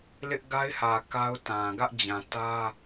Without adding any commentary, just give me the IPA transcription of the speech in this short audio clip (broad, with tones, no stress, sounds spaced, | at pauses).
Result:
l ɪ˦ ʔ ɡ a˦ ɪ̯ h ä˨ k a˦ ʊ̯ t ã˨ ɡ ä˦ ʔ d͡ʑ ã˨ t ä˦